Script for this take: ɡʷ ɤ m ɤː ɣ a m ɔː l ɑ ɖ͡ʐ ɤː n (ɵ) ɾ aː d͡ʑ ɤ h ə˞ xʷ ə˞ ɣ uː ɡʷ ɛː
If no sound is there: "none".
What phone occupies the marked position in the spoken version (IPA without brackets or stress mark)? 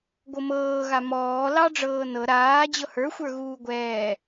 ɤ